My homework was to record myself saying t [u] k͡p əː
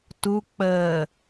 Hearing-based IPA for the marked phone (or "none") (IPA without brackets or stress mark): u